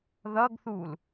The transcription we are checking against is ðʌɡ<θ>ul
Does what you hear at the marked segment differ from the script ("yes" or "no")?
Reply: no